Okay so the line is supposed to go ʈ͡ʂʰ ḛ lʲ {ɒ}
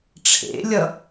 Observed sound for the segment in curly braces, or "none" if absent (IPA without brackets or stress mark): ʌ